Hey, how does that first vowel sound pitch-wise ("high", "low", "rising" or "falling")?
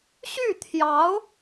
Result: falling